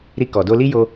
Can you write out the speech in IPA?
ɾi˧kɔ˨ do˧li˦jo˧

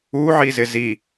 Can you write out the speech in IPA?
uʕizɪ zi

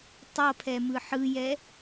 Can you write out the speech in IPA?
tˤʌpʰɛ mɯħɯjɛ

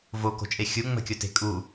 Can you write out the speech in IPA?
voko̤t͡ʃʼe xʲuŋ͡mə̤kʲote̤ kʼu

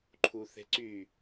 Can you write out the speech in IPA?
ǃʰuθe̤ǀy

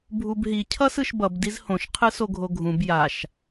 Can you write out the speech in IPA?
bʱubɦi cʰʌsɯʃbʌb dizhõʃ qʰɯsoɡʱoɡʱũb jaʃ

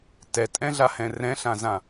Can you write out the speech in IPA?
tɛtʼɛ̃ɮahɛ̃ rɛ̃ɬãzã

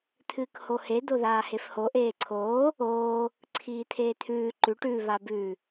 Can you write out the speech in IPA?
t̪ʰɨːkhohe d̪oðaːhefho ʔeːǀʰoː | oː | ǀʰiːt̪ʰeːt̪ʰʉː ǃʉʈ ʉ βabʉ

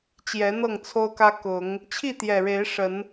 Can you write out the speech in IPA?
t͡ɕjɛ˨˦n̪ɤ˥˨ŋt͡sʰo˦ʊ̯kä˦ kʊ˨˦ŋ | t͡ɕʰi˥˨t̪jɛ˨˩ɻe˨˦ɪ̯ ʂə˨˦n

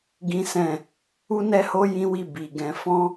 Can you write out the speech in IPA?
ɡĩ˦sɛ̃˦˨ | u˦nɛ˦ho˦ jĩ˦wi˦˨ bi˨ɡɛ̃˧ fɔ̃˦

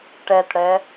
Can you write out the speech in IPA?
ʈɛtɽɛ

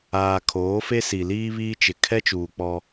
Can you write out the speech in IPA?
aː˨ kʰoː˨˦fe˦si˨ liː˦βiː˦t͡ʃɪ˨ kʰɛ˦t͡ʃuː˨ k͡pɔ˦

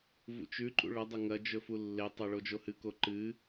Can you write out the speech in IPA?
vṵt͡ʃʉǃʼṵ ɭɐdˤɐ ŋɐd͡ʒɵ fulːetˤo ɭod͡ʒohɨko ǃɨ

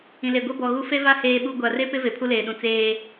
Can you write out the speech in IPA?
ĩ˨le˨ɡʷɛ˦ bɔ˨ɣu˦ fe˦va˦ heː˦ɓu˦ ɡʷa˨re˦pɪ˦ ve˨pʰu˦leː˨ɗũ˨ t͡seː˦

